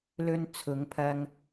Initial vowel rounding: rounded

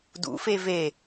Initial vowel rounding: rounded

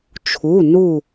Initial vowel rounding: rounded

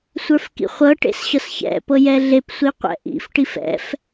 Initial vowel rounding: unrounded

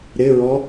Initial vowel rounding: unrounded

